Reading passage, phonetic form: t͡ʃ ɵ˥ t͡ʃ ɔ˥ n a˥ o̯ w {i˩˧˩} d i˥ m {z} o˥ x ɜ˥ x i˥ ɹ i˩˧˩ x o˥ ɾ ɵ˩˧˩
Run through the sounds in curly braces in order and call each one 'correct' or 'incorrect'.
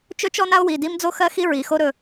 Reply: correct, incorrect

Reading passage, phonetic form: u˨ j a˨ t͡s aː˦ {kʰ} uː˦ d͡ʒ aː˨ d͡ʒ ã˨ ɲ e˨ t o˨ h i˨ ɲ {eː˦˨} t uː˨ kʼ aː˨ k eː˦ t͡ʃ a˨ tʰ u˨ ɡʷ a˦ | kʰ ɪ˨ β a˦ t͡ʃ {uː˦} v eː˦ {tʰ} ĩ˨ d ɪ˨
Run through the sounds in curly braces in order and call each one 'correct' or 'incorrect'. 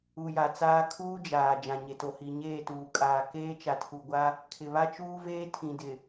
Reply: correct, correct, correct, correct

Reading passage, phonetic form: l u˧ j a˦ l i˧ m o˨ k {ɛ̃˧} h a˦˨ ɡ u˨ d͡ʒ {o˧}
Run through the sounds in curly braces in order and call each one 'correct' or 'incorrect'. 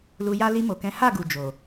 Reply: incorrect, incorrect

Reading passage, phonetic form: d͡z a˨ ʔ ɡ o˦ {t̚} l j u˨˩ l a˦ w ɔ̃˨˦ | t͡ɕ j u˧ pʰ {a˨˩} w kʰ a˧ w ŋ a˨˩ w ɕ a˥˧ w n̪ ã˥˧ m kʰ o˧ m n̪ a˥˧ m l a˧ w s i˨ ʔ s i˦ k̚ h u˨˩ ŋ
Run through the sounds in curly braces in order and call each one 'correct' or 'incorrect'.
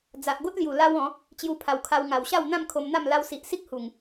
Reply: correct, correct

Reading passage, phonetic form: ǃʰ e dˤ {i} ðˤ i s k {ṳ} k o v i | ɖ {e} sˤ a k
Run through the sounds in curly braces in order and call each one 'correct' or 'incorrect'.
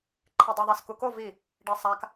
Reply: incorrect, incorrect, correct

